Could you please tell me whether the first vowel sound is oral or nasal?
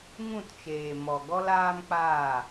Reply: nasal